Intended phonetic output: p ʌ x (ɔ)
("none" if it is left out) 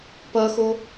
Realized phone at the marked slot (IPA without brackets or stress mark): o